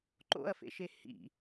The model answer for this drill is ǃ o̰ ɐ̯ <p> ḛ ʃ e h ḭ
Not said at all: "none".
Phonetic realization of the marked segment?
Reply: f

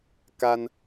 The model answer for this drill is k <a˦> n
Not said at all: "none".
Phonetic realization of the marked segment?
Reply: a˦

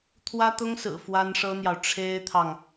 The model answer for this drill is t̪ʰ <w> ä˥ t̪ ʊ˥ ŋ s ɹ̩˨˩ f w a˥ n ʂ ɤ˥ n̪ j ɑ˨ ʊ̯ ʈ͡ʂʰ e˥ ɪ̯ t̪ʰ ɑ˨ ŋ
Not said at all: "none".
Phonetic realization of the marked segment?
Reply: w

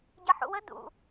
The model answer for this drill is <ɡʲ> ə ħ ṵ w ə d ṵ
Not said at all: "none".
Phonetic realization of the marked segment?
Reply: ɟ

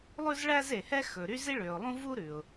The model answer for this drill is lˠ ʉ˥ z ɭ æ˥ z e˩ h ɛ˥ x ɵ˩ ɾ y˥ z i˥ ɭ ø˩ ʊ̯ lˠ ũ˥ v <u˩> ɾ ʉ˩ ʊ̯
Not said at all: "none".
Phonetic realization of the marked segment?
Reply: u˥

